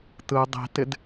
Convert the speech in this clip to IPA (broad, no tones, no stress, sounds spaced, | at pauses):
t ɯ dˤ i̤ t ɪ d